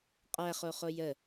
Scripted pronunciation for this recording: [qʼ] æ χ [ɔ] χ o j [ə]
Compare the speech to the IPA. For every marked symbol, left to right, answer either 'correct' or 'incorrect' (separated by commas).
correct, incorrect, correct